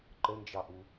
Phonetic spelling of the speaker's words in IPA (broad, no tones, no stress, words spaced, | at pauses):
ǃənd͡ʒɑʔu